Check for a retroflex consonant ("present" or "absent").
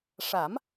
present